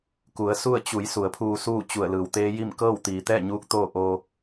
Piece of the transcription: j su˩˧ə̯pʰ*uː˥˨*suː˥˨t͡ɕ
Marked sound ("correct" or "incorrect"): incorrect